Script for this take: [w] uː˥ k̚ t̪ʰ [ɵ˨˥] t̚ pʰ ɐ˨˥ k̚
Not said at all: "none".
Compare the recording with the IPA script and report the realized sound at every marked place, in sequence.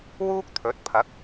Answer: w, ɵ˨˥

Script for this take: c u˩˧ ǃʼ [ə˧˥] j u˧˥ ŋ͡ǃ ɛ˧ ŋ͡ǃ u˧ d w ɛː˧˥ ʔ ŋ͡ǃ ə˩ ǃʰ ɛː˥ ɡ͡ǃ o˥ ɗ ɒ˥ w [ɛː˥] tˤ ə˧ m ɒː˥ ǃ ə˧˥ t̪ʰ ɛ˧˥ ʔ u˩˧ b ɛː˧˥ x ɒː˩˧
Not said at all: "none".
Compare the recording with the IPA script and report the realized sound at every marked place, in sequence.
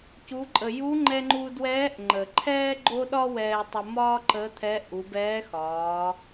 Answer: ə˩, ɛː˧

